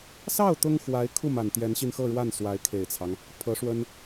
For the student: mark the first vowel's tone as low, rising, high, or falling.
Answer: falling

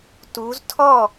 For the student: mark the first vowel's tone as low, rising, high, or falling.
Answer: rising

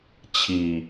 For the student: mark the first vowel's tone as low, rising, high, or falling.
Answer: low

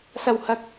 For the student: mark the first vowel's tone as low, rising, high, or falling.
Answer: low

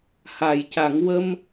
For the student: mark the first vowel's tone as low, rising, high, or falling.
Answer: low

